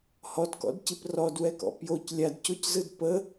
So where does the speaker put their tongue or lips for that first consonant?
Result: throat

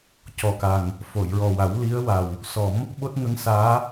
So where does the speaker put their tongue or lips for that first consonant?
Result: palate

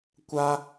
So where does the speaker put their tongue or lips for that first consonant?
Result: velum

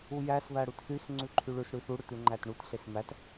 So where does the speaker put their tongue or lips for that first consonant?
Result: palate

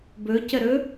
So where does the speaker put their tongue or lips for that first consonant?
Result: lips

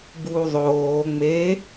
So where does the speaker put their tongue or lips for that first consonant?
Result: lips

